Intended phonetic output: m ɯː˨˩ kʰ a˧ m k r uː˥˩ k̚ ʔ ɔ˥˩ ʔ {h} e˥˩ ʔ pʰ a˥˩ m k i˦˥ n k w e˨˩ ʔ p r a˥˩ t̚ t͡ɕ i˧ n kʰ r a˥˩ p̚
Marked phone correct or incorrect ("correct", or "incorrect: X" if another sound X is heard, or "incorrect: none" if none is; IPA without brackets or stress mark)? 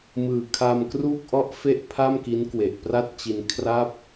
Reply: incorrect: f